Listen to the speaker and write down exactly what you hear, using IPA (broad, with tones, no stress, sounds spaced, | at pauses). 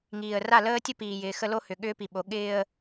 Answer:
ŋ iː˨ ə̯ r a˦˨ l əː˦ tʲ ə˦ p iː˨ j ɪː˨ x ə˦ l o˦ h ʏ˨ ɠ ʏː˦ p i˨ ɓ o˨˦ ɠ ɪː˦ ə̯